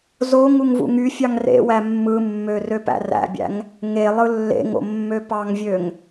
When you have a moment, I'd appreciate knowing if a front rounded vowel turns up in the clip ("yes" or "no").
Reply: yes